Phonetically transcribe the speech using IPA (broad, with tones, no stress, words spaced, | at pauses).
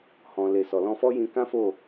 hɔ̃˨ le˨ sɔ˨lɔ̃˧ fɔ˦jĩ˧kã˦fo˦˨